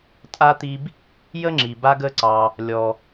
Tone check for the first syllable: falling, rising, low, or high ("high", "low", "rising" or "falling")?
high